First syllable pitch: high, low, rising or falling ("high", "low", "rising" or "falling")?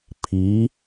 rising